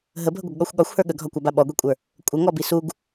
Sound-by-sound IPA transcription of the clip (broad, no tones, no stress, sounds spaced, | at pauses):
ɦ ə bʱ ə ɡʷ ə ɡ ɠ ɔ xʷ ɠ ɒ xʷ h ə˞ ɠ ə ɡʱ ɒ kʷ a b a ɓ ɔ ɡʷ i kʷʼ ə˞ | kʷʼ ə ŋ ɔ b i s u ɡ